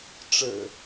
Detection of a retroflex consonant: present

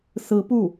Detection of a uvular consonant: absent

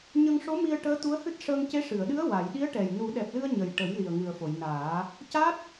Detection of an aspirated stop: absent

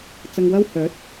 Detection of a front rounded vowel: present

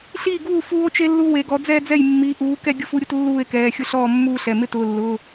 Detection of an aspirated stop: absent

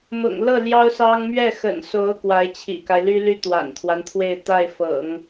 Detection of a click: absent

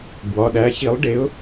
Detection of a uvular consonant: absent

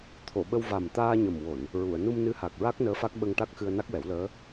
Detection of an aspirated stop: present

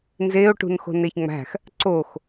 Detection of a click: present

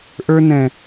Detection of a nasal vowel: present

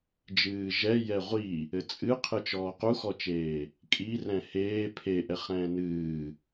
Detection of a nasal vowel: present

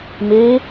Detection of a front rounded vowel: absent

